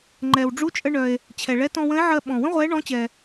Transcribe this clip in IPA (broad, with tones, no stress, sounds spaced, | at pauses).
ŋ͡ǃ ɛ˩ w ɖ͡ʐ u˧˥ t͡ʃʼ ə˧ ɳ œ˩ e̯ | t͡ɕʰ ɛ˩ ɭ ɛ˧˥ t ɔ̃˧ w ə̃˧˥ e̯ ʕ ɜ˧ ɓ ɔ̃˩ w ə̃˥ ʁʷ ɛ˧˥ ɳ ɔ̃˧˥ t͡ɕ ɛ˩